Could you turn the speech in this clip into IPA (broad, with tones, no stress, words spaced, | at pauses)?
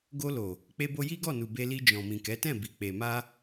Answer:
ɡo˧lo˨ | k͡pe˧bo˧ ji˦ɡɔ˦˨nu˨ be˧li˧ d͡ʒɔ̃˨mĩ˨kɛ˨˦tɛ̃˦˨ bi˨k͡pe˨ ma˧